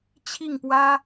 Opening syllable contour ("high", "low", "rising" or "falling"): falling